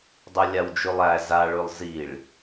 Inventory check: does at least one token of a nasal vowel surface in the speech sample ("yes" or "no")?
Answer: no